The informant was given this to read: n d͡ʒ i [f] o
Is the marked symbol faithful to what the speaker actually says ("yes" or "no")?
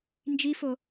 yes